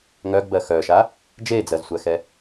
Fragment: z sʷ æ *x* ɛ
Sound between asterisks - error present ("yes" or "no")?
no